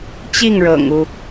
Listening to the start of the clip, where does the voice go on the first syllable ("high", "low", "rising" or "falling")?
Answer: falling